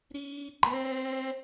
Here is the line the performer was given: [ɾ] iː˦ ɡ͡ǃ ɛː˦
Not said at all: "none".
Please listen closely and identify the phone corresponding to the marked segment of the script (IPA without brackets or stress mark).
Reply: ɾ